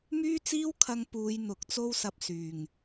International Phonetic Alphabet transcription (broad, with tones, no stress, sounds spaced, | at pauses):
m yː˥ t͡s iː˥ w kʰ ɐ˧ ŋ p uː˨˧ j n̪ ʊ˨˥ k̚ t͡s o˥ w s ɐ˧ p̚ s yː˨˩ ŋ